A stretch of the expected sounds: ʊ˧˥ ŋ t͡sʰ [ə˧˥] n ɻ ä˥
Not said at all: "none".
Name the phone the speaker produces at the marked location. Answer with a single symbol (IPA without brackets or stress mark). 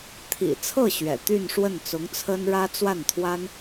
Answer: ə˥